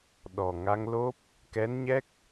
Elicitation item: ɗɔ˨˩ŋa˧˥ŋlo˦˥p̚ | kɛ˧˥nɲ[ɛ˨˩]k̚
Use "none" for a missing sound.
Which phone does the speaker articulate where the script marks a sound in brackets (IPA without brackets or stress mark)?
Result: ɛ˦˥